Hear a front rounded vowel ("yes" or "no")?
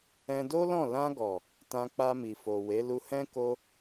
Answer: no